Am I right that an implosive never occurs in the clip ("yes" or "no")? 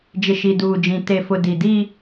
yes